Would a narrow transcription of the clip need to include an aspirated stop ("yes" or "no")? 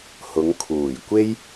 yes